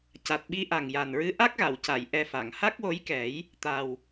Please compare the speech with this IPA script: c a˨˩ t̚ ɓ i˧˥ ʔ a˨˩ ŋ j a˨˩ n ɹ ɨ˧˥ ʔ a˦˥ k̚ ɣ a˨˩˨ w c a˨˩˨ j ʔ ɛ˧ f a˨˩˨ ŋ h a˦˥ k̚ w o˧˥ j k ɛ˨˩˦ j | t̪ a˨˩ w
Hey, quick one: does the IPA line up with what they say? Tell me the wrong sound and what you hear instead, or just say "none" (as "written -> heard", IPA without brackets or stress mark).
none